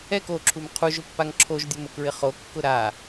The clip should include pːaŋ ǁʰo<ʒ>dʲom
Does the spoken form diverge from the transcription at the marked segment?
no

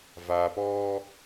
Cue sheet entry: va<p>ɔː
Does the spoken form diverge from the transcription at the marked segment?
no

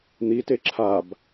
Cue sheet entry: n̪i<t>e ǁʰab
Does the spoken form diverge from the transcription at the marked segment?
no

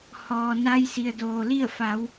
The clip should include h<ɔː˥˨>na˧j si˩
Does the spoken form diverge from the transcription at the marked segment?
yes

